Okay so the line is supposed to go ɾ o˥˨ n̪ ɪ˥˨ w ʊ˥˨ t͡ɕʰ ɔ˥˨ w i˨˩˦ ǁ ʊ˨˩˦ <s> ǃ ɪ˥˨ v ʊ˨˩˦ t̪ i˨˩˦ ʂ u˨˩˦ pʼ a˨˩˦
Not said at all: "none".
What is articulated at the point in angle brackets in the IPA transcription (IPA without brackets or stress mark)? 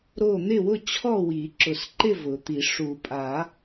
s